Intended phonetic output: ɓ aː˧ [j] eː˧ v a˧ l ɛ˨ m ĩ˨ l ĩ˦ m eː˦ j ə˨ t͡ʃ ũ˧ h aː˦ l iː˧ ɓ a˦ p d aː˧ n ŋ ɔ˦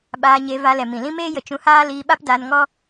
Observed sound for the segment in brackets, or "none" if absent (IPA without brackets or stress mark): ɲ